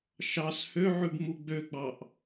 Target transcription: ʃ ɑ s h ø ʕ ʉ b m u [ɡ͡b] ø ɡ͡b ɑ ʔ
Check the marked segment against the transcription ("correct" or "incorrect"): correct